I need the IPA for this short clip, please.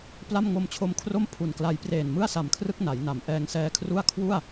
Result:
p l a˥˩ m ŋ o˧ m t͡ɕʰ o˧ m kʰ r o˥˩ m pʰ u˨˩ n k l a˧ j p r eː˨˩ n m ɯ˥˩ a̯ s a˨˩ m kʰ r ɯ˥˩ k̚ n a˩˦ j n a˩˦ m ʔ ɛː˧ ŋ s ɛː˦˥ kʰ r u˥˩ a̯ kʰ w u˥˩ a̯

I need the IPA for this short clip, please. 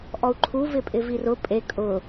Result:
ʔ ɔ u̯ ǃʰ u v ɪ pʼ ɪ v i r ʊ pʼ e kʼ ʊ

